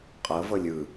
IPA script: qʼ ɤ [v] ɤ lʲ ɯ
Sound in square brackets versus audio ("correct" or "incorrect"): correct